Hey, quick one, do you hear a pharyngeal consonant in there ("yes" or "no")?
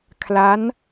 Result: no